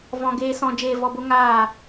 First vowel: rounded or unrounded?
rounded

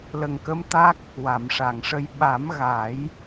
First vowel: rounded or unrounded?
unrounded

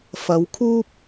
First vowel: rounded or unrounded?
unrounded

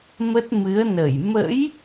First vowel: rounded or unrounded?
unrounded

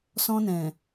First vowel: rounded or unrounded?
rounded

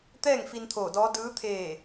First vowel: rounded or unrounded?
unrounded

